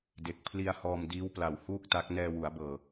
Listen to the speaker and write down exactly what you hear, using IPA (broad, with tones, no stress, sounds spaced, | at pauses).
d e˨˩ k̚ pʰ l i˧ a̯ h ɔː˧ m d iː˦˥ w p l a˨˩ w h uː˥˩ k̚ t a˦˥ k̚ n ɛː˧ w u˩˦ a̯ b ɤː˨˩